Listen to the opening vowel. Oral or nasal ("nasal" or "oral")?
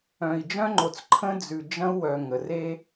nasal